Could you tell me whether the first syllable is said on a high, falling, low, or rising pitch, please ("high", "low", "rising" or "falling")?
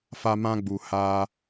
high